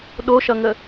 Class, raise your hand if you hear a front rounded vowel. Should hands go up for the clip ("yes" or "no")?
no